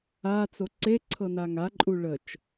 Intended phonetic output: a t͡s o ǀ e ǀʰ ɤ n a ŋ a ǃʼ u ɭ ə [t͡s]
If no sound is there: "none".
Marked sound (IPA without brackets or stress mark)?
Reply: t͡ʃ